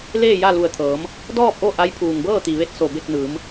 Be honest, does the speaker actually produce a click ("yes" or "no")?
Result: no